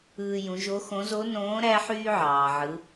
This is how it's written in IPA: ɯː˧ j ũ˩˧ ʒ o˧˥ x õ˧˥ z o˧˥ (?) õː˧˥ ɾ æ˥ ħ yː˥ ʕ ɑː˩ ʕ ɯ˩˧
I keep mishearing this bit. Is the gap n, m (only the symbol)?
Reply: n